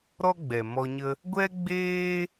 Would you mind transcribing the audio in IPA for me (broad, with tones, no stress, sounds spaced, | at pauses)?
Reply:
ɾ ɔ˦ ɡ͡b ɛ˨ m ɔ˧ ɲ ə˦ | ɡʷ ɛ˦ ɡ͡b eː˦